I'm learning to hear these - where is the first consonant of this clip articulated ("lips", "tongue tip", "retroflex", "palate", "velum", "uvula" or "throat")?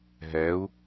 throat